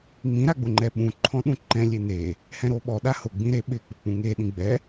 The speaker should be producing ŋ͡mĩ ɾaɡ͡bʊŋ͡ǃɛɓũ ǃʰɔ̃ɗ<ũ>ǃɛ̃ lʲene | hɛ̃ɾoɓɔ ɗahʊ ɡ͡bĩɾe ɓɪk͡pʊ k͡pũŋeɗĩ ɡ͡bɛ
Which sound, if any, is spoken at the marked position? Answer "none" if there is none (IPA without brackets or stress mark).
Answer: ũ